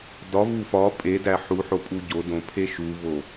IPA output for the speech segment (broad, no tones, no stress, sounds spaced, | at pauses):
d ɒ v u f ɒ pʼ e d æ ħ u ħ o pʼ u ɟ o d õ pʰ e ʃ u v o